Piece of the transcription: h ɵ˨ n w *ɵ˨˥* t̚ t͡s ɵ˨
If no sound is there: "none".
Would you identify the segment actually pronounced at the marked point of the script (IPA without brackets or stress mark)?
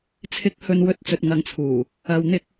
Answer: ɵ˨˥